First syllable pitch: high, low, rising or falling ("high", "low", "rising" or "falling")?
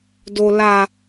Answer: low